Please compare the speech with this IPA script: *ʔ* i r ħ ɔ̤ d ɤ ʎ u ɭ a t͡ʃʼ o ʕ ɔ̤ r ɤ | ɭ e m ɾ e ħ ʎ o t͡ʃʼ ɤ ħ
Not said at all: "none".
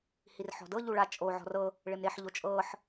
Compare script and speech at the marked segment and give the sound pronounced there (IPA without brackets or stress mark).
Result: h